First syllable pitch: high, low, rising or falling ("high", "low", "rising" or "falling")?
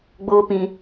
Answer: high